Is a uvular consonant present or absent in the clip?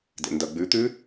absent